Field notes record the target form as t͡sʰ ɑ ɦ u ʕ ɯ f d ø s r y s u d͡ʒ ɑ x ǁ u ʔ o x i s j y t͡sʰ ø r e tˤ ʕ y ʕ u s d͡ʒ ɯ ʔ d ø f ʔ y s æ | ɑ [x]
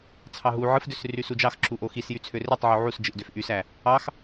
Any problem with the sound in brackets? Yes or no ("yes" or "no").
no